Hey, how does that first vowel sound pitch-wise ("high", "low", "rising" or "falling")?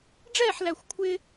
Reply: falling